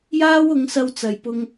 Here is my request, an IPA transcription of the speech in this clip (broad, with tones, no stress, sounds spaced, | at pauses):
j aː˥ w ʊ˨˧ ŋ s ɐ˧ w t͡s ɐ˨ j p ʊ˧ ŋ